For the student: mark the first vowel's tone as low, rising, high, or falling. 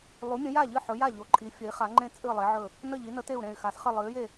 rising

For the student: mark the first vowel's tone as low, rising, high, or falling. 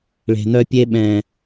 low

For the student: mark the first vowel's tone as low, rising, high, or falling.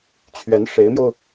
rising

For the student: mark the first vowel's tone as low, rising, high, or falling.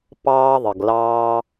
high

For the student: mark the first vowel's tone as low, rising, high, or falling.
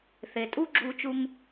low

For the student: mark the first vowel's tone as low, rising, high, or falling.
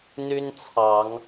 high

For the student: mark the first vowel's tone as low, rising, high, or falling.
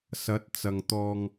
rising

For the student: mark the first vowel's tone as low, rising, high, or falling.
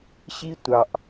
high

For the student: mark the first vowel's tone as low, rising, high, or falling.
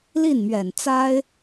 falling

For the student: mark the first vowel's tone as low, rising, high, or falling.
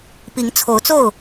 rising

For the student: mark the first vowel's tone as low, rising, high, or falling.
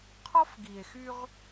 high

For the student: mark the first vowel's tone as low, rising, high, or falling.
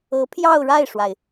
rising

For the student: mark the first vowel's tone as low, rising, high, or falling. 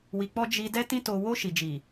low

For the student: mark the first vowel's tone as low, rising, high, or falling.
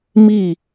falling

